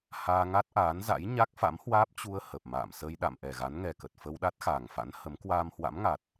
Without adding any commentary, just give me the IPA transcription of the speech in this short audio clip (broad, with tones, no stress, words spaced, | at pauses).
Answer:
haː˧ŋa˦˥t̚ʔaː˨˦nza̰˧˥j ɲa˦˥k̚fa̰˧˥mhwaː˦˥p̚ t͡ɕu˧ə̯ hə˨˩p̚ma̰ː˧˨m sə˧jɗa̰˧˨m ʔɛ˨˩ɣa˨˦nŋɛ˨˩kə˨˩t̚ fə˧wɗa˦˥t̚xaː˨˩ŋfa̰˧˥n hə˨˦m kwaː˧mhwa̰˧˥mŋa˨˩t̚